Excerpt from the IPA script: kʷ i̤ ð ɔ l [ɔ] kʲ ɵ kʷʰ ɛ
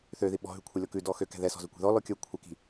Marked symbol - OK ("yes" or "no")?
yes